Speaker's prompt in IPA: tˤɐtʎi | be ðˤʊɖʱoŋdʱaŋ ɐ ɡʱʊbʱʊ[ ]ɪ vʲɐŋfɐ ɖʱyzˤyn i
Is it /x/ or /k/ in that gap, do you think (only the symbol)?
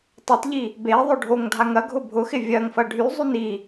x